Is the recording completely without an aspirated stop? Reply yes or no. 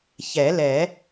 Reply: yes